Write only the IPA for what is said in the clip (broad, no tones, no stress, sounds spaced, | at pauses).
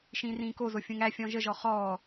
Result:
ʃ ĩː r ĩː k o z o fʲ ũ ŋ æ fʲ ɔ̃ ʒ ə ʒ ɔ χ ɔː